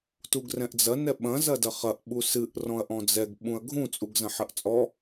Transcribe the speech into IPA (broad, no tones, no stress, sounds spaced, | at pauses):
t u ɡ r ɛ̃ ʔ d͡z ɐ n ɛ ɓ ɐ̃ z ɐ d ɐ χ ɐ ʔ ɓ u s ɨ ʔ r ɔ̃ ɐ̯ ʔ ɔ̃ d͡z ɛ ɡ ɓ ũ ɐ̯ ɡʱ ũ t͡sʼ u ɡ z ɐ̃ ħ ɐ ʔ t͡sʼ ɔ